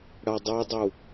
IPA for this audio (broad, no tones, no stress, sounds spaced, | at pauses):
ɽ ɐ dˤ u dˤ u